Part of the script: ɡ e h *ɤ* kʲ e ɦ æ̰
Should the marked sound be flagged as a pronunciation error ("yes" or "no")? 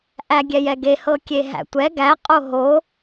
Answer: no